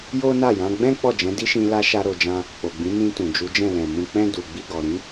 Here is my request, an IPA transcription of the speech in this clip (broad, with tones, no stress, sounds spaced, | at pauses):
j o˦ n a˦˨ j ã˨˦ ɡ͡b ɛ̃˦ k͡p ɔ˦˨ d͡ʒ ɛ̃˨˦ d i˦ ʃ ĩ˧ l a˦ ʃ a˦ ɾ o˧ d͡ʒ ã˦ | k͡p o˨ ɡ͡b ĩ˨˦ n ĩ˧ t ũ˨ d͡ʒ u˨˦ d͡ʒ ɛ̃˦˨ l ɛ̃˨ m ũ˨ k͡p ɛ̃˧ d u˨ ɡ͡b i˧ ɡ ɔ˨ ɾ ĩ˨˦